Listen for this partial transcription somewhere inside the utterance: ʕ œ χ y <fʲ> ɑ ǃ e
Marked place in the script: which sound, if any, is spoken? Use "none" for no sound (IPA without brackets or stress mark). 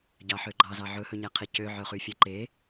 fʲ